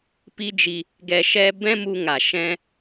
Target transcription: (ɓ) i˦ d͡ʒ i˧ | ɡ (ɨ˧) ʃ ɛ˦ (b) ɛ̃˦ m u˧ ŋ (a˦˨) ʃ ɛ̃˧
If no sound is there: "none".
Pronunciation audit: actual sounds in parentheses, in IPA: p, ɛ˧, b, a˨

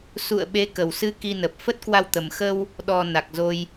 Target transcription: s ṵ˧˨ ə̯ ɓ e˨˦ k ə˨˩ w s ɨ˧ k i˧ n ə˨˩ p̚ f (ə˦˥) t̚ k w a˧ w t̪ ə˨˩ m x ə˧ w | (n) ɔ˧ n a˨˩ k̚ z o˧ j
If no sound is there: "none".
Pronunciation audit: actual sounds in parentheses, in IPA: ə˦˥, ɗ

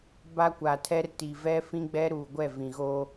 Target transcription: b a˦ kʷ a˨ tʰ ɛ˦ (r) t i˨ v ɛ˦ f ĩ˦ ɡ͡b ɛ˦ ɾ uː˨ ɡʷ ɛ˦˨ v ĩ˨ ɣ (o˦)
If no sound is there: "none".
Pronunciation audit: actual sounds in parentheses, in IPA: r, oː˦

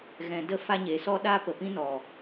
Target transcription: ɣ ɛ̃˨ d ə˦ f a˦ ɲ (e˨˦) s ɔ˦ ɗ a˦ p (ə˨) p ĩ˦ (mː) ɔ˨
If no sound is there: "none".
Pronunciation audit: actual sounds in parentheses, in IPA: e˨˦, ə˨, n

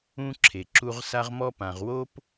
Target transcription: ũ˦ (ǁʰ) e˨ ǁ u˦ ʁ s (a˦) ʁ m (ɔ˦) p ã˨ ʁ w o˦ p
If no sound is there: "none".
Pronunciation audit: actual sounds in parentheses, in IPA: ǁʰ, a˦, ɔ˦

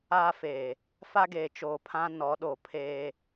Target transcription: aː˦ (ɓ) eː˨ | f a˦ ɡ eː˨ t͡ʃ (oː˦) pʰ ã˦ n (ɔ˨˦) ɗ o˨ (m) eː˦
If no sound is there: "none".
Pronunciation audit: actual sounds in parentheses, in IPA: f, oː˨, ɔ˨˦, pʰ

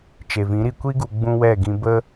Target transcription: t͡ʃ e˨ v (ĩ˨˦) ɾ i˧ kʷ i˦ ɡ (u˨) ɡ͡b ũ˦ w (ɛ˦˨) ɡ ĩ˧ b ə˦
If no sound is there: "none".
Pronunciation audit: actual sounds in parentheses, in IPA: ĩ˨˦, u˨, ɛ˦˨

